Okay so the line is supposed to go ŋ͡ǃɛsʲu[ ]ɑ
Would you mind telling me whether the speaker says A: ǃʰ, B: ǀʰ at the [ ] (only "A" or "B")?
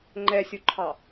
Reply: A